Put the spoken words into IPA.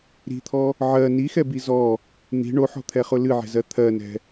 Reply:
ɾ i̤ t̪ʰ ɔ | ʕ ɜ n i x ɛ b i z ɔ | n̪ i̤ ɳ o ħ ɔ̤ t̪ʰ ɛ χ ʊ l ɨ ʕ ɛ̤ z ɜ t̪ʰ ɜ n ɛ̤

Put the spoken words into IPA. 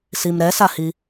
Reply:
s i m ɾ ɛ s a h i

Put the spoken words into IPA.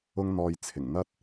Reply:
ʊ˥ ŋ n̪ ɔː˧ j t͡sʰ ɪ˨˩ ŋ n̪ ɐ˧ t̚

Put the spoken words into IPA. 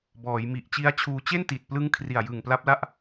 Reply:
b ɔː˩˦ j m i˨˩ ʔ t͡ɕ i˦˥ a̯ t͡ɕʰ uː˧ t͡ɕ e˥˩ n t i˨˩ t̚ p l ɯ˦˥ ŋ kʰ r i˨˩ a̯ j ɯ˨˩ ŋ p l a˦˥ p̚ l a˥˩ ʔ

